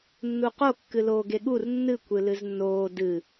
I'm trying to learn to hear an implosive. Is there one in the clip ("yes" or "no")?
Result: yes